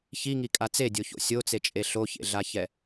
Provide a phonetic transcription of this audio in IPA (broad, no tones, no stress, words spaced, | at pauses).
çiŋikʼa t͡sedʲoço̰ sʲot͡set͡ʃʼe ɬoçḛɮaçɛ